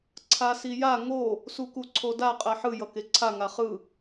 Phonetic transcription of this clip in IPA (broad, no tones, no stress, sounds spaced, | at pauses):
ǀʰ a s i j a ŋ o | s u k u ǀʰ o d a qʼ ɛ ħ ɯ j ʌ k e ǀʰ a ŋ a χ ɯ